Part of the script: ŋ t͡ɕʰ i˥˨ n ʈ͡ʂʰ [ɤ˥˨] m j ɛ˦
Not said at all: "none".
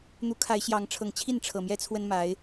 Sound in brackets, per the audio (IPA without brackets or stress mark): ɤ˨˩